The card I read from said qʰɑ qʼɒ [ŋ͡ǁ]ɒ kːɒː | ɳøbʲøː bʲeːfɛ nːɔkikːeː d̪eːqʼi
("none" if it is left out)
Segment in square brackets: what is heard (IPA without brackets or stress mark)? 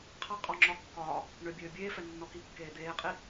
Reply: ŋ͡ǁ